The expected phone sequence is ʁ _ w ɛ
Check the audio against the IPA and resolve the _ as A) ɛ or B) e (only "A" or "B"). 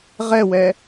A